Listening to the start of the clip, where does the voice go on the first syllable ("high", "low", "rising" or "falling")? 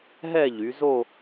falling